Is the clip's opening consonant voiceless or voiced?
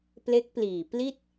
voiceless